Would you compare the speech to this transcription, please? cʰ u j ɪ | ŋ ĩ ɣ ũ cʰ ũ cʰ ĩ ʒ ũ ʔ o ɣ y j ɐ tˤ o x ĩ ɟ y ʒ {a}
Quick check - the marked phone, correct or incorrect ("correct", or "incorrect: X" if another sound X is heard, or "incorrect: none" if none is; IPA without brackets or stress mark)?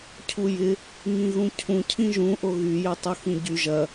incorrect: ɐ